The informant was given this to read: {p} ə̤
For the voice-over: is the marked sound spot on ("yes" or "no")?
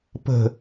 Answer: yes